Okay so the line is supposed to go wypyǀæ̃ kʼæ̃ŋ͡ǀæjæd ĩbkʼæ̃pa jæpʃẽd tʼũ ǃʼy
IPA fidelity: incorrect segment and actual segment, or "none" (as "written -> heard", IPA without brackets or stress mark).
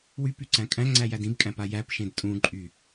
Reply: none